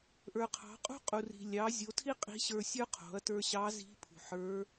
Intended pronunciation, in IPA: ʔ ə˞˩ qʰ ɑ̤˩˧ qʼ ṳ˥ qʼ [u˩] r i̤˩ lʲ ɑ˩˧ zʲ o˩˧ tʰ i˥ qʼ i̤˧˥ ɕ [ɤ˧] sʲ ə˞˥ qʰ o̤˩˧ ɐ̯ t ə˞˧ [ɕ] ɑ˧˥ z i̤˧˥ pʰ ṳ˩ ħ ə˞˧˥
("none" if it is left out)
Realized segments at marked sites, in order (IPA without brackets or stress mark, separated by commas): u˩, ə˞˧, ɕ